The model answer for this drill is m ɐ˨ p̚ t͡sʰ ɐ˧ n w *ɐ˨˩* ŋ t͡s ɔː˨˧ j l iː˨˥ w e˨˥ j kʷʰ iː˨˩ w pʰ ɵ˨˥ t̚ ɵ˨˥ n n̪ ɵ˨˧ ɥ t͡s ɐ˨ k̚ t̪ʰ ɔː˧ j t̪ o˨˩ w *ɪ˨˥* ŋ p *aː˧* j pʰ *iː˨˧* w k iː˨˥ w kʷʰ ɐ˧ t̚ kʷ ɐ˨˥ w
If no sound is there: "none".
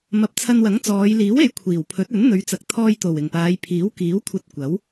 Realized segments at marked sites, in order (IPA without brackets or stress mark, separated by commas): ɐ˨˥, ɪ˨˩, aː˨˧, iː˨˥